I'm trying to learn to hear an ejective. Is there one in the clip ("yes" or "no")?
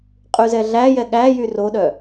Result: yes